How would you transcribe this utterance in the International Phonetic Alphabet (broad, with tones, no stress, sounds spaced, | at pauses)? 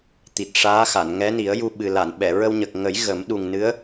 t̪ i˨˩ t̚ ʂ aː˧˥ x a˨˩˨ n ŋ ɛ˧˥ n i˨˩˦ ə̯ j u˧ ɓ ɨ˨˩ l a˨˩˨ n ɓ ɛ˨˩˨ ɹ ə˧ w ɲ ə˨˩ k̚ ŋ ə˨˩˦ j ɣ ə˨˩˦ m ɗ u˨˩ ŋ n ɨ˧˥ ə̯